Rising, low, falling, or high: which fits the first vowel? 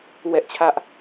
high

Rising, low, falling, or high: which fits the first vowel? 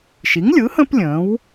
rising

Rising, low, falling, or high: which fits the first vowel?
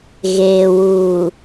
low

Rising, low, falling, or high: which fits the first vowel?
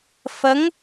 rising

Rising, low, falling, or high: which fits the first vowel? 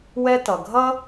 high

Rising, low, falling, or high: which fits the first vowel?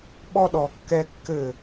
high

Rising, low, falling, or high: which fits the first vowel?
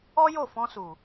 high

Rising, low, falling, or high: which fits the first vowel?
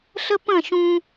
high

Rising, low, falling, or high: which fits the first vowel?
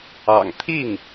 low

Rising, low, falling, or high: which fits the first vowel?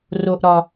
high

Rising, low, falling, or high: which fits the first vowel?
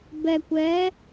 low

